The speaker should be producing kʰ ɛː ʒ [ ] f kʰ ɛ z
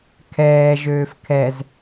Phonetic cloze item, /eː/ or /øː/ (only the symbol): øː